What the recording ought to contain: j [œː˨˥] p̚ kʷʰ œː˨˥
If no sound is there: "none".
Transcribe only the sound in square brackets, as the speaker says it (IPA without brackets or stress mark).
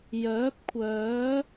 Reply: œː˨˥